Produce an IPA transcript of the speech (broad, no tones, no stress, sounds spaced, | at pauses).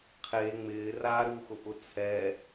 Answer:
qʰ e ŋ͡m ɪː r aː ɾ u x ʊ ʔ ʊ t͡sʰ ɛ